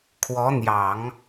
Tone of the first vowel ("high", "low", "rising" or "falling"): rising